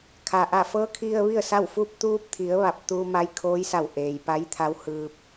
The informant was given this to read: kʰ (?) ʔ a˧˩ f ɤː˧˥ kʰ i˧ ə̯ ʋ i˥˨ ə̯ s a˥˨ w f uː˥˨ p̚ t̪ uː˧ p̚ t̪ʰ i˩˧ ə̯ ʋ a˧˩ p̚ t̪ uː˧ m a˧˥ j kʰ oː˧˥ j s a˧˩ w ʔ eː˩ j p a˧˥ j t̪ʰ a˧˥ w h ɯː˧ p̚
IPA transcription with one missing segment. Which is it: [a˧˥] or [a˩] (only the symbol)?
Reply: a˩